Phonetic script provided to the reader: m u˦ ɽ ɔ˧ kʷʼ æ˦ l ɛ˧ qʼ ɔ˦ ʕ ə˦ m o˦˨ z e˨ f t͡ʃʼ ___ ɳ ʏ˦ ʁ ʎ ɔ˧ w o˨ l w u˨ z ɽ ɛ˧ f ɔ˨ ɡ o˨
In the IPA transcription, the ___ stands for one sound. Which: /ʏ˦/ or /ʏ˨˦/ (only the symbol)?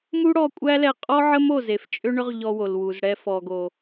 ʏ˦